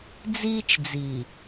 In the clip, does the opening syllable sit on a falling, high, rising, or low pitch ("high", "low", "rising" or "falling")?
high